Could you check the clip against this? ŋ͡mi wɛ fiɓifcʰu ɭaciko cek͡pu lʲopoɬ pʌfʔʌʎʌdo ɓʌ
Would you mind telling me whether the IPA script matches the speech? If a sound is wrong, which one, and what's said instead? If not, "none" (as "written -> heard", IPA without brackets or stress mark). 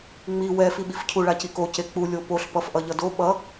none